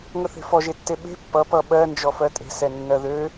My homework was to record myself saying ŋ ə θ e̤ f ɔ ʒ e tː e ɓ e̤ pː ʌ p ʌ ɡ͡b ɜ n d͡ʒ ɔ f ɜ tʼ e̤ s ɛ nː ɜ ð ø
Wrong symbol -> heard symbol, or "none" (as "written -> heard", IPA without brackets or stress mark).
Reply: ɡ͡b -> ɓ